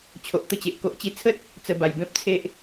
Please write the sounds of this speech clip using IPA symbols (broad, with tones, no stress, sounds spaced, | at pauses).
t͡ɕʰ o˨ ʔ t̪ ə˧ t͡ɕ e˨ ʔ k o˨ ʔ t͡ɕ i˧ t͡sʰ ə˦ t̚ | t͡s ə˨˩ b a˨˩ j b ẽ˦ p̚ t͡sʰ e˦ ʔ